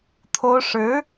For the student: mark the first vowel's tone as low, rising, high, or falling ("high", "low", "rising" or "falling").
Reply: high